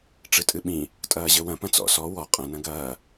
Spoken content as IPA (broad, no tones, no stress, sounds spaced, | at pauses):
ʈ͡ʂ ɨ tʼ ɨ ɓ ĩ | tʼ ɐː ʑ ɘ w ɐ̃ p ɐ̃ t͡s ɔ̰ s ɔ w ɔ qʼ ɐ̃ n ɐ̃ ɡ ɐː